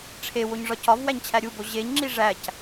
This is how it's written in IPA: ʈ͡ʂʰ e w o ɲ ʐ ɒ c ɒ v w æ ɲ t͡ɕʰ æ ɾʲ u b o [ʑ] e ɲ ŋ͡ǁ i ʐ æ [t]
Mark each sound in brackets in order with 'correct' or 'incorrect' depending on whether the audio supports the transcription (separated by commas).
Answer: correct, incorrect